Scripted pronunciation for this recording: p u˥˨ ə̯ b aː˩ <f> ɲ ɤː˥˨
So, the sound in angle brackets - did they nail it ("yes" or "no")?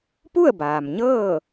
no